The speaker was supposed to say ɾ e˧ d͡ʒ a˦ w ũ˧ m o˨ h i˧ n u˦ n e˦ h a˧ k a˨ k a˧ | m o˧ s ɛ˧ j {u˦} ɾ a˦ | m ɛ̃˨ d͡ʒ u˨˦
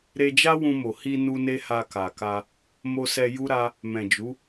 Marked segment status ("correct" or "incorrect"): correct